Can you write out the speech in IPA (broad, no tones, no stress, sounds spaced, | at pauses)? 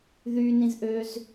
ð y n ĩ z ʔ ø z